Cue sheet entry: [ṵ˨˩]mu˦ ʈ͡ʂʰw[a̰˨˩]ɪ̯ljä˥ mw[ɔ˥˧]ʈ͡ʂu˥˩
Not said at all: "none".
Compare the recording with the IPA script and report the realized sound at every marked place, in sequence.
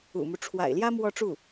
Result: ṵ˨˩, a̰˨˩, ɔ˥˧

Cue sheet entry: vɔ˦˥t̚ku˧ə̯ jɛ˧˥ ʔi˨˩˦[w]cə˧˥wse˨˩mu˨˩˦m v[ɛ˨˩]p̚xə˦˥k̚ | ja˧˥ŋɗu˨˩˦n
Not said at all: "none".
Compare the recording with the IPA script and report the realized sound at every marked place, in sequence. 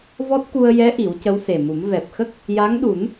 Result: w, ɛ˨˩

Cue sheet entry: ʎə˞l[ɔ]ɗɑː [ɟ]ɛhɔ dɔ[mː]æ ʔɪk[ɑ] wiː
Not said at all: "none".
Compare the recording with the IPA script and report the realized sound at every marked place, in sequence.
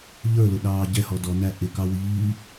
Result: ʊ, ɟ, n, ɑ

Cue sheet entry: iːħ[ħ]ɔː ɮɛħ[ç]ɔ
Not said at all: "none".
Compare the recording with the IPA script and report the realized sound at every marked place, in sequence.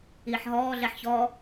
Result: ɦ, ç

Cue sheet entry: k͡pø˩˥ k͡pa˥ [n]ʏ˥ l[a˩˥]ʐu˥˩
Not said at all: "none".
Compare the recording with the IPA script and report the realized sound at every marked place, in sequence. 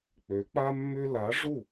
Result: mː, a˩˥

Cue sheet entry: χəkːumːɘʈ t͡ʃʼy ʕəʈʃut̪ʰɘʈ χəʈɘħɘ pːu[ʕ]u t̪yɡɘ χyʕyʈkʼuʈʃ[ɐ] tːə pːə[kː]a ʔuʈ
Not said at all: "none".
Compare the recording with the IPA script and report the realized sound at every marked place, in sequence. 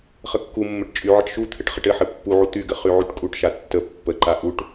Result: ʕ, a, ǃ

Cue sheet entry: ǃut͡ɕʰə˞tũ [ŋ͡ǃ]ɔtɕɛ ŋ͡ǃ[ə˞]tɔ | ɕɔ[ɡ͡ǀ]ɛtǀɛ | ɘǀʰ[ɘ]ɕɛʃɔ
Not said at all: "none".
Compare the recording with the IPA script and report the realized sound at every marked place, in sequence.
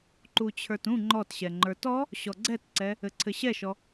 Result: ŋ͡ǃ, ə˞, ɡ͡ǀ, ɘ

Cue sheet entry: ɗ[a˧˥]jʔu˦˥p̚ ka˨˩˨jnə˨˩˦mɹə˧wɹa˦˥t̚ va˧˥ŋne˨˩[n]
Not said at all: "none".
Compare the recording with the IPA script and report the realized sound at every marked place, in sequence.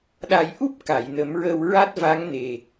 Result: a˨˩˦, none

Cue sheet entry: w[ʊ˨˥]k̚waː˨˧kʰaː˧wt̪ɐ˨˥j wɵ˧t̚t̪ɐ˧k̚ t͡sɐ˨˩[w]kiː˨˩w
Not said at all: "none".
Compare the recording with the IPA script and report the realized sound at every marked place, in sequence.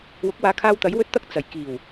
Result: ʊ˨˥, j

